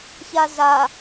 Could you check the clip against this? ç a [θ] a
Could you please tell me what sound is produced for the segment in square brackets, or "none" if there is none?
z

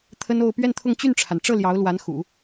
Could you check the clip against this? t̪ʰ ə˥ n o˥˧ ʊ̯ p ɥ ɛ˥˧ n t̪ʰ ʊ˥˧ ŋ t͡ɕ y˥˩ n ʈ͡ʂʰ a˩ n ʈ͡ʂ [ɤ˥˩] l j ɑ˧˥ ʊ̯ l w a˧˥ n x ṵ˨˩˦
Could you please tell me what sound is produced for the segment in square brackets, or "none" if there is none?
ɤ˥˩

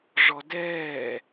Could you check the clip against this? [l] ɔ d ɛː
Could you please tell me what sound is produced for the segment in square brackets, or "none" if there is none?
ʐ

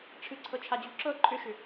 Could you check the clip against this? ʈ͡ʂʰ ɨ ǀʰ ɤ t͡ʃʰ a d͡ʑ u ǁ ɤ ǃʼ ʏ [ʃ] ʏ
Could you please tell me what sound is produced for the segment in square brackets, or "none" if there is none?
ʃ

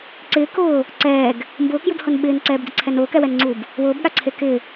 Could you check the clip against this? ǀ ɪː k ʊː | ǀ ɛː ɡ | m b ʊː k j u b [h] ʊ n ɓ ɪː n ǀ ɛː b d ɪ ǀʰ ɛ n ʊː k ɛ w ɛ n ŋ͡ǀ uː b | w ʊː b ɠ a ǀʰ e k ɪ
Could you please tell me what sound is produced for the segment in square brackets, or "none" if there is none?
h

